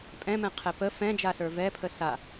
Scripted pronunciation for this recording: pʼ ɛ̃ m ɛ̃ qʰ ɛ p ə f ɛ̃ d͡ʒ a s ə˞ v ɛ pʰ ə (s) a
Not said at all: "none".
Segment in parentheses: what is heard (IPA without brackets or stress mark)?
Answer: s